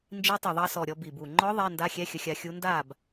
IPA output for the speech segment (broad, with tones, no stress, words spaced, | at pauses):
nd͡ʒi˧˥ tˤə˨˩ðˤɑ˧sɔ˨˩ ɾʲɔ˧bi˨˩bu˨˩ ŋ͡ǃɔ˧˥ ðˤɛ˧˥˧ nda˧˥˧xʲɛ˧˥˧xʲə˧xʲa˧ xʲu˧˥nda˥˨b